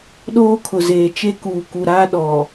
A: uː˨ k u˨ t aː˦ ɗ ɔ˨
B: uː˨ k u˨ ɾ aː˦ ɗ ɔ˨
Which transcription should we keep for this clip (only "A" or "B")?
B